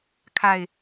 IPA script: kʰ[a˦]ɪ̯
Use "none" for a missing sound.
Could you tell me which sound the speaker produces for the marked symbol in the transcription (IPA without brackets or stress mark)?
a˨˩